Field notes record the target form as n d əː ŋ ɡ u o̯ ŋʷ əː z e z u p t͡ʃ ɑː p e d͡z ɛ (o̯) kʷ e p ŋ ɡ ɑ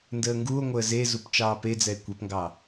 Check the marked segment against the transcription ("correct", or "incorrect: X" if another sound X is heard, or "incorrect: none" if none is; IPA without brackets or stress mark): incorrect: e̯